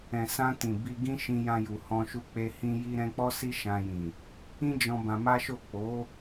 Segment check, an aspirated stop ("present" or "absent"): absent